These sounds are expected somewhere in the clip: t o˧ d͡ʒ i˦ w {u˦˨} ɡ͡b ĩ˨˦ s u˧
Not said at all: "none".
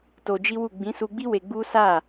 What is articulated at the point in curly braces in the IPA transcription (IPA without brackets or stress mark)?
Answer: u˦˨